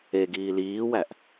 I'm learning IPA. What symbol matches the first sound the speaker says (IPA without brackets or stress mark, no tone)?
e